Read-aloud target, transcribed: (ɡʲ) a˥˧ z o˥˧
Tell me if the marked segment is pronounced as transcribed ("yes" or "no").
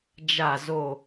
no